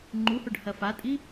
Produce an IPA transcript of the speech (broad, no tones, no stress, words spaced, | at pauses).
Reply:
ŋ͡ǃuhoɖ hɐfatʼi